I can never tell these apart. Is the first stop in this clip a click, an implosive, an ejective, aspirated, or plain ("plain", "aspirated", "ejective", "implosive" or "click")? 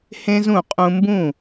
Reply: ejective